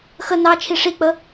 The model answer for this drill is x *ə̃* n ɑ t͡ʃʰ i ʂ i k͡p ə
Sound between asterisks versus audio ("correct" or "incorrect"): incorrect